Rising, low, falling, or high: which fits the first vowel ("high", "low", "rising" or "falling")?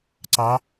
rising